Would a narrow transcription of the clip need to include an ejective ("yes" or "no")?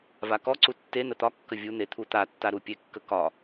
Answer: no